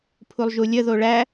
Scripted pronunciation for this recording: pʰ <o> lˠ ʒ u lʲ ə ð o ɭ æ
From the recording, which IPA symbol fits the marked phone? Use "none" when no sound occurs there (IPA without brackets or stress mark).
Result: u